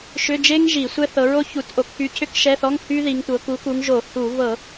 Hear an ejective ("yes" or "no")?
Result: no